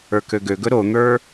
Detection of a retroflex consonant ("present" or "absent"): absent